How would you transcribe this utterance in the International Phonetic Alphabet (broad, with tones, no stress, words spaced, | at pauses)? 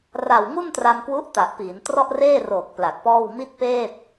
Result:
ra˨˩wŋu˥˩ntra˧mkwu˦˥ʔ ta˨˩ʔpiː˩˦n trɔ˥˩ʔ reː˥˩roː˨˩k̚ pla˨˩k̚pɔː˥˩w mi˥˩t̚peː˥˩t̚